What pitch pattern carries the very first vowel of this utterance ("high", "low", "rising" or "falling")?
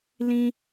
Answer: high